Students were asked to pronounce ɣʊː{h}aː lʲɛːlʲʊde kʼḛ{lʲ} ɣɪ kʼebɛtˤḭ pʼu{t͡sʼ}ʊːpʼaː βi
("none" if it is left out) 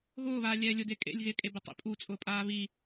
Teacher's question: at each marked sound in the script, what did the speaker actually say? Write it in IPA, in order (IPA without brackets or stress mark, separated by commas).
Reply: β, lʲ, t͡sʼ